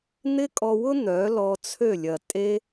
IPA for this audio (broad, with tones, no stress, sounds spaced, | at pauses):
n̪ ɪ˦ kʼ ɔ˧ w ʊ˦ n̪ œ˨˦ l ɔ˧ t͡sʰ ø˦˨ lʲ ɐ˨ tʼ e˦